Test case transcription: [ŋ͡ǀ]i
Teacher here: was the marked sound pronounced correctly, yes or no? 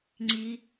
yes